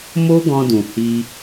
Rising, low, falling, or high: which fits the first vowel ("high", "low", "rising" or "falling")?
high